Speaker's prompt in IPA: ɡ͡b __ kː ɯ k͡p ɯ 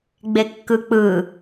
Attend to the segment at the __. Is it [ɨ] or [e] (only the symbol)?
e